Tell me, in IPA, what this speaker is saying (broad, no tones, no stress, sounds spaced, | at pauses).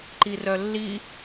ǃ i r œ lː i